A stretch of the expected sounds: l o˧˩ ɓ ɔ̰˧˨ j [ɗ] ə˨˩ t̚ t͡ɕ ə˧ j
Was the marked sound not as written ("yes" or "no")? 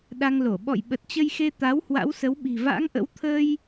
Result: yes